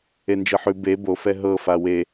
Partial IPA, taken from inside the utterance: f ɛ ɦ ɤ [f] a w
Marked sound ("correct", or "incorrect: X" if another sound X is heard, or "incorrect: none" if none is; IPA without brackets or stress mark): correct